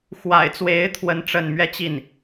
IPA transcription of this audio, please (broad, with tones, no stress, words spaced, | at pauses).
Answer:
xwa̰˨˩ɪ̯t͡swe˧˥ɪ̯ t̪ʰwə˥nʈ͡ʂə˥˧n mɥɛ˥˧t͡ɕi˥˩n